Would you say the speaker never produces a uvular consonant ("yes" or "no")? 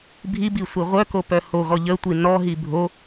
no